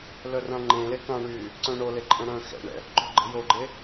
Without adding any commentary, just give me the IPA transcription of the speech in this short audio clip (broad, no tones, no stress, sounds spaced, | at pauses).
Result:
l œ r ã ŋ͡ǃ ẽː l e k ã ɳ yː | ǀ œ̃ ɳ o l e ǃʼ ə̃ ɽ œ̃ x ɛ̰ ɳ ɛ̰ | ǃ o̤ ɡ͡ǃ ə̤ j o ɡ͡ǃ e